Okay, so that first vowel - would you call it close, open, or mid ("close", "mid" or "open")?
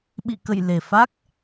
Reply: close